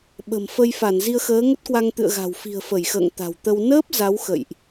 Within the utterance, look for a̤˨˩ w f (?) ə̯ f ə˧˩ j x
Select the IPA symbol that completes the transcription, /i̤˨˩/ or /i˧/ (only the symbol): i̤˨˩